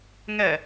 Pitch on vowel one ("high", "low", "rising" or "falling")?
low